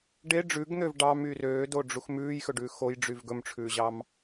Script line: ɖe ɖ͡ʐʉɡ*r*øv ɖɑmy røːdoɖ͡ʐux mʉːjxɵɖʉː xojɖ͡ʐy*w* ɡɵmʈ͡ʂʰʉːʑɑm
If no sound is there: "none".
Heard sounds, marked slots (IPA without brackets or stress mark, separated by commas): n̪, v